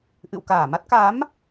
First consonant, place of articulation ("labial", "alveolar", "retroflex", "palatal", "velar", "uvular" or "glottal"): glottal